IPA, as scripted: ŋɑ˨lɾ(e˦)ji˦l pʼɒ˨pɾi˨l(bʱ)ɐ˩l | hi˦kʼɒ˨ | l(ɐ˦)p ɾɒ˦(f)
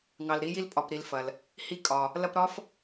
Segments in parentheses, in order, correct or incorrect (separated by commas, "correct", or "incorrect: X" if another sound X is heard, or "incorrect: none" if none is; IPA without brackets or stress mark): incorrect: i˦, incorrect: f, incorrect: ɐ˥, correct